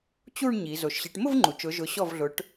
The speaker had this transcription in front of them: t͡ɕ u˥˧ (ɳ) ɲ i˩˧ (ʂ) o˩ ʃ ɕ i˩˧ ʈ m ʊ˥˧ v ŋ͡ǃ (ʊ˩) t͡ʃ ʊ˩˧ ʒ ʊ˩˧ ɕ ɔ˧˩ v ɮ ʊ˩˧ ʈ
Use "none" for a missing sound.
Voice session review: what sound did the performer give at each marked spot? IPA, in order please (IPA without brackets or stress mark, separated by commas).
ɳ, z, u˩